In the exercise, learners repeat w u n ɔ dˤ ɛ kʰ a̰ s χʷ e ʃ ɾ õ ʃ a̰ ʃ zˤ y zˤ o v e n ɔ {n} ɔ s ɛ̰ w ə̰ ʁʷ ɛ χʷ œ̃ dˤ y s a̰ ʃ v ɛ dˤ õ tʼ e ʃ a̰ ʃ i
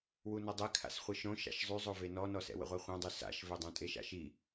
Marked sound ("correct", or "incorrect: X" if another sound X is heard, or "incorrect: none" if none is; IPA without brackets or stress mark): correct